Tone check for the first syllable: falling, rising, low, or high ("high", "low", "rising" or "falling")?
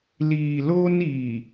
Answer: low